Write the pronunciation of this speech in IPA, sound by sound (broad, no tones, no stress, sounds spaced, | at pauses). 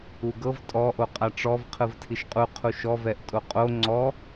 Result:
u ɡ ɤ v tʼ ɔ ʔ o qʼ a ʈ͡ʂ ɔ v qʰ ɯ v tʰ i ʃ qʼ u qʰ u ʃ ɔ v ɛ ʔ tʼ o qʼ o ŋ͡ǀ ɔ